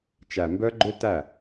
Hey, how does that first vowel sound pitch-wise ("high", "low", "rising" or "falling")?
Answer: low